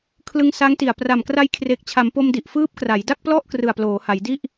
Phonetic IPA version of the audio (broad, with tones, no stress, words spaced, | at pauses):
kʰlɯ˧ŋsa˦˥ŋti˨˩a̯ pra˨˩mkra˧jkʰre˨˩k̚t͡ɕʰa˩˦m po˧mdi˨˩ʔ fɯː˦˥p̚kra˩˦jda˥˩k̚plɔ˥˩ʔ krɯ˨˩a̯ploː˩˦ha˩˦jdi˥˩ʔ